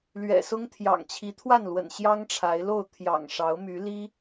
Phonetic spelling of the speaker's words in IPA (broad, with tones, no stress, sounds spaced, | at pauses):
l ɥ ɛ̰˨˩ s ʊ˦ ŋ t̪ʰ j ɑ̰˨˩ ŋ t͡ɕʰ i˨˦ t̪ʰ w a˥˨ n l w ə̰˨˩ n ɕ j ɑ˦ ŋ ʈ͡ʂʰ a˨˦ ɪ̯ l o˥˨ ʊ̯ t̪ʰ j ɑ̰˨˩ ŋ ʂ ɑ˨˦ ʊ̯ m y˨˦ l i˦